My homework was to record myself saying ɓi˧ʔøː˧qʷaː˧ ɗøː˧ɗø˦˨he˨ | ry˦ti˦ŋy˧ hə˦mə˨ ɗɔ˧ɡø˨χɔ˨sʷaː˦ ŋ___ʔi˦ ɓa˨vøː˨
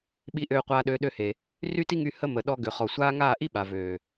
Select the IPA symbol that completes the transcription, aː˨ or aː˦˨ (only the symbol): aː˦˨